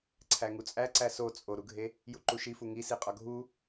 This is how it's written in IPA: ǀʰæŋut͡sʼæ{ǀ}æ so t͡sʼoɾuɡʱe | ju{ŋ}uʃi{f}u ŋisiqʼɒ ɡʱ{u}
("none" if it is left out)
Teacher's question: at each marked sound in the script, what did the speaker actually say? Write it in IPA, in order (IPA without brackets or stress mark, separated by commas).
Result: ǀ, ǃ, f, u